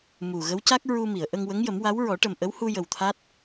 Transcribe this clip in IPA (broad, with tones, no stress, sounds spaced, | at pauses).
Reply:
m u˨˩ ɣ ə˧˥ w c a˦˥ k̚ ɹ u˧ m i˨˩˨ ə̯ ʔ ə˧ ŋ w ə˧˥ ŋ j ə˨˩˦ m w a˧˥ w ɹ ɔ˨˩˦ ʈ ə˨˩ m ʔ ə˧˥ w h u˧ j ə˨˩ w t̪ʰ a˦˥ t̚